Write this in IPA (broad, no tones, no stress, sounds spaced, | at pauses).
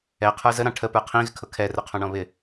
ɛ qʰ ə˞ z ə ɾ ɑ̃ ʈʰ ə p ə˞ qʰ ĩ ɣ ɪ kʰ ʊ kʰ ɛ r ʊ qʰ ɔ̃ ɳ ɔ̃ β ɪ